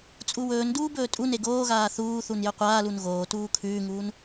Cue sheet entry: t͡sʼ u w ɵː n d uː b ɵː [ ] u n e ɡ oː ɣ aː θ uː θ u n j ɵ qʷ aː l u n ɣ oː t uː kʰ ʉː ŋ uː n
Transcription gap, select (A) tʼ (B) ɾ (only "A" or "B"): A